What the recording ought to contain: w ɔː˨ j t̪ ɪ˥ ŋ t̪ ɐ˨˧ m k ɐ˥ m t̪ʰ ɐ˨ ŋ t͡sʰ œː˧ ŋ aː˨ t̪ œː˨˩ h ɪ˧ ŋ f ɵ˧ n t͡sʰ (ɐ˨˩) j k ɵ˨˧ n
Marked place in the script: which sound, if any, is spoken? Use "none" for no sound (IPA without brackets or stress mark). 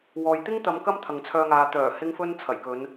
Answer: ɐ˨˩